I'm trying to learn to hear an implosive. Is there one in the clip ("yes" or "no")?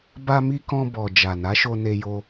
no